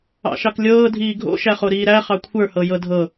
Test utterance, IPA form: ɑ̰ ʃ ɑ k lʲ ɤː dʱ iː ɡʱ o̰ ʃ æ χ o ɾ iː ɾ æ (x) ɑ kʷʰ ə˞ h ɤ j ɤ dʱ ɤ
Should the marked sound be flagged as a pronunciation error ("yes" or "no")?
yes